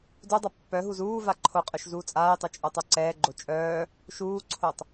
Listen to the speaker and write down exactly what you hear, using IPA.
d u dˤ a pː œ ɦ u z uː v a ǃʰ o qʼ œ ʃ z uː t͡sʼ aː j tˤ o t͡ʃʼ o tˤ o ǀ ɛː ɡ͡ǃ o t͡ʃʼ œː | ʃ uː ǀʰ o tˤ

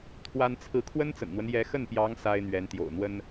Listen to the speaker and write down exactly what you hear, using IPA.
t̪ʰ w a˥ n t͡sʰ ɹ̩˥˩ kʰ w ə˥ n t͡s ə̰˨˩ n n̪ w ə˦ n j ɛ˧˥ x ə˥˩ n p j ɑ˧˥ ŋ s a˥ ɪ̯ n̪ ɥ ɛ˧˥ n t̪ j o̰˨˩ ʊ̯ n̪ w ə˥ n

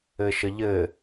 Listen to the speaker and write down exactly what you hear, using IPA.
ɘ ʃ ə ʎ ɘ

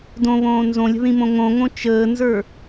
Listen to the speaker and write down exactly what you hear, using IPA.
d õ β õː n z õ lʲ ə̤ ð ĩ m õ ŋ õ ŋ õ t͡ʃ əː n z ə˞

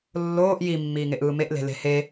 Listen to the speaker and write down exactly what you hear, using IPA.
lː oː ʔ j i mː iː ŋ e ʔ ɯː m e ʔ l e̤ l e̤ h e

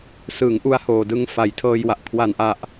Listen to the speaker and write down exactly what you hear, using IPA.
s ɯ˩˦ ŋ ʔ u˧ a̯ h oː˨˩ d ɯ˧ ŋ f a˩˦ j tʰ ɤː˧ j w a˨˩ ʔ kʰ w a˨˩ n ʔ a˨˩ ʔ

